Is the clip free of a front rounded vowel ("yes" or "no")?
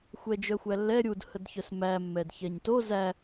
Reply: no